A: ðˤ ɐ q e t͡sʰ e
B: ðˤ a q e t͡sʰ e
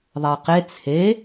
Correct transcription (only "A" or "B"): B